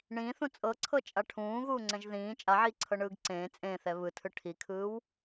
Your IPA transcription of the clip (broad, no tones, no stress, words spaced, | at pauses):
ɳĩːθũ t͡sʼɤǀʰɤt͡ʃʼa ʈʰũːɣuːŋ͡ǀɛ̃ʒ ðĩː t͡ʃʼaʕiːǀʰɤɳɯːɡ ǀẽː t͡sʼẽːθɛ βɯtʰɯ ʈʰikʰɯːw